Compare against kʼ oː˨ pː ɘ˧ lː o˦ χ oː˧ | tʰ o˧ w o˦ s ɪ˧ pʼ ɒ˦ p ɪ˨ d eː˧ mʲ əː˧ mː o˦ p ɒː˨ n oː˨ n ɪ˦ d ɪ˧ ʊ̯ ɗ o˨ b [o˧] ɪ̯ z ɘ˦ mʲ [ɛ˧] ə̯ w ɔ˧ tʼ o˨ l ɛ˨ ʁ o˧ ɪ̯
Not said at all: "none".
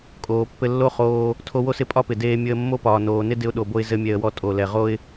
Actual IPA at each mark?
o˧, ɛ˧

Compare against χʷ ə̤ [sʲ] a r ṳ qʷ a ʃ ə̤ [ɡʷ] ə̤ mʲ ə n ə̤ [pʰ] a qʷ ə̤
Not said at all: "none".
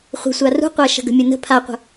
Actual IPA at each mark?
sʷ, ɡ, pʰ

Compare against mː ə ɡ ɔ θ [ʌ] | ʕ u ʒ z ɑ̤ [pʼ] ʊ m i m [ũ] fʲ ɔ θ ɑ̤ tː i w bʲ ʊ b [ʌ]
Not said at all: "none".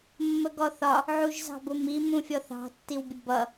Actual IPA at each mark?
ɒ, b, ũ, ʌ

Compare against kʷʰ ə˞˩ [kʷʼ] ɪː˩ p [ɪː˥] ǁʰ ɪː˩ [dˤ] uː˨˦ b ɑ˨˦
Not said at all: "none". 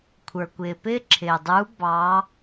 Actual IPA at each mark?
kʷ, ɪː˥, dˤ

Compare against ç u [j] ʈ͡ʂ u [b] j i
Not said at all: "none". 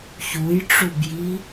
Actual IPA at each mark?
j, b

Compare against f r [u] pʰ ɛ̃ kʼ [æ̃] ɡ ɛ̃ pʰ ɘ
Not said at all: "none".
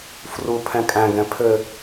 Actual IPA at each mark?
u, æ̃

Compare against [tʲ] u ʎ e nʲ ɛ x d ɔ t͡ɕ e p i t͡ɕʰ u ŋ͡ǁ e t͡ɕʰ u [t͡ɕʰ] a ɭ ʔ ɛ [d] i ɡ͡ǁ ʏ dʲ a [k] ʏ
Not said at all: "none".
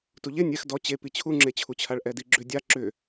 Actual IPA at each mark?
t, t͡ɕʰ, d, ǁ

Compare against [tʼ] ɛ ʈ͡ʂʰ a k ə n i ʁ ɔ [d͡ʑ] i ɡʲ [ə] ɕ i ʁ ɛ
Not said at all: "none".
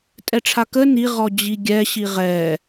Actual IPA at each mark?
tʼ, d͡ʑ, ɛ

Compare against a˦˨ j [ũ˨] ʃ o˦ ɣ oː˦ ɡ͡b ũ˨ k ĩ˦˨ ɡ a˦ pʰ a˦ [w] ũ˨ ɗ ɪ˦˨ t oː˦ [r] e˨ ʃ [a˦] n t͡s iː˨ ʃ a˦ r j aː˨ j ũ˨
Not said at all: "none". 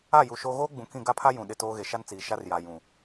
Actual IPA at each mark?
u˨, j, ɣ, a˦

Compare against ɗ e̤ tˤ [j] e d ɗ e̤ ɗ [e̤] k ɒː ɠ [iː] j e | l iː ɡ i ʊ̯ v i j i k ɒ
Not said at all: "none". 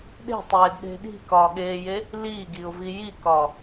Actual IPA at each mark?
j, i̤, eː

